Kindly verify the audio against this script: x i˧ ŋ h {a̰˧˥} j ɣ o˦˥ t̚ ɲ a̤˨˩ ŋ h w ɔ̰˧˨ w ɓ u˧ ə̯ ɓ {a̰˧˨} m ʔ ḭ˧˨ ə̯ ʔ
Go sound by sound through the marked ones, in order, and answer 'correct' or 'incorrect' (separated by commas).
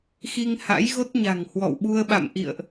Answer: correct, correct